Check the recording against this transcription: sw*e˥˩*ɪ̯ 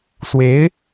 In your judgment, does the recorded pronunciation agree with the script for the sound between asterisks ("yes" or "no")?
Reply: no